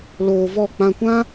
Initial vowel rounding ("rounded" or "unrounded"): rounded